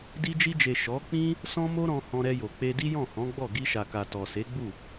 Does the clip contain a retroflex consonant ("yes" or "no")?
no